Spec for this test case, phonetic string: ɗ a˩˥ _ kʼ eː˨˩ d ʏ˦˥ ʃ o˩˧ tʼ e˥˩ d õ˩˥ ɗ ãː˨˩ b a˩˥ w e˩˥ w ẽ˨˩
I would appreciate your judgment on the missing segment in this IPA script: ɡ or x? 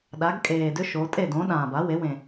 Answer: ɡ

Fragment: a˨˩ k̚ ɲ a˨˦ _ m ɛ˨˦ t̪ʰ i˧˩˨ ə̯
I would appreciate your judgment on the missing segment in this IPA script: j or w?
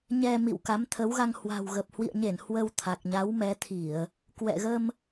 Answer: w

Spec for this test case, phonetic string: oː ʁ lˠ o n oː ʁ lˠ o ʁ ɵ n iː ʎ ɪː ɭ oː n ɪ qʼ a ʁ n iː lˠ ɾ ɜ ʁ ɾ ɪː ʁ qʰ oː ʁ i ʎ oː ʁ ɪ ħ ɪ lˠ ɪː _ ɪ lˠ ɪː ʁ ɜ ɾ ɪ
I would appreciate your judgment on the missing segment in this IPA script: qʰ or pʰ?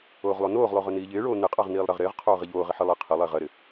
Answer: qʰ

